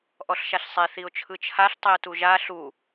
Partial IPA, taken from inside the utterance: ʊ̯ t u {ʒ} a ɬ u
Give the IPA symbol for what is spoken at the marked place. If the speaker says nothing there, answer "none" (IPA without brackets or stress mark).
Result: ʒ